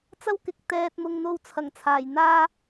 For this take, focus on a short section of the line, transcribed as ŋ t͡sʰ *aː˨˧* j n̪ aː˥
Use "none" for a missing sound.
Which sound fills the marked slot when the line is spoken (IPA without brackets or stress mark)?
aː˨˩